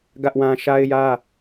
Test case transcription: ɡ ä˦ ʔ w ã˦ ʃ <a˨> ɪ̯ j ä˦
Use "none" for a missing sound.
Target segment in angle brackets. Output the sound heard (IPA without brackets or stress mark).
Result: a˦